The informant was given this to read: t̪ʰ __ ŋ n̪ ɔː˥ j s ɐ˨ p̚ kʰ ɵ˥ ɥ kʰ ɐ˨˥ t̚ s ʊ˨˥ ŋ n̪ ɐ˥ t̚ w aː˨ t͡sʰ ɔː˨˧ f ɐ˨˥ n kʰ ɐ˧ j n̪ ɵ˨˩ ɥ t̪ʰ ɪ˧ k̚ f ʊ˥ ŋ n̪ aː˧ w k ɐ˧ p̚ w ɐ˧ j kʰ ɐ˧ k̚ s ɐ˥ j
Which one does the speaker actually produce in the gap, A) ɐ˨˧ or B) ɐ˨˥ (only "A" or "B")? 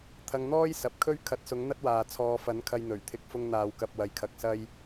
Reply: A